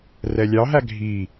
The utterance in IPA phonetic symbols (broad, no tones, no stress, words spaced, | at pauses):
rɛlʲɑɦæ ɡʱi